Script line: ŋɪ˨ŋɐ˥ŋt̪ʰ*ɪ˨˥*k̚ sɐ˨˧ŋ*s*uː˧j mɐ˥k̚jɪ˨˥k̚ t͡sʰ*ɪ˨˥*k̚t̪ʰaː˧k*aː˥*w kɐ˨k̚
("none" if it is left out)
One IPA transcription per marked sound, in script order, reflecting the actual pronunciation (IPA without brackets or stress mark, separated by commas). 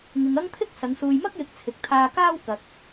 ɪ˥, s, ɪ˨, aː˥